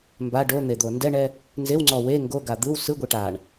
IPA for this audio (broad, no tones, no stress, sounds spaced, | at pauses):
m b a ɖ o n̪ e d̪ o n d ɛ ɳ ɛ | n z e w ŋ͡ǀ ɔ w e ŋ ɡ o ɡ a d̪ ɯ w s ɯ ɡʷ i ʈ a ɳ